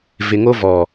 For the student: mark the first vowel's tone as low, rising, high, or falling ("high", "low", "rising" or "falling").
low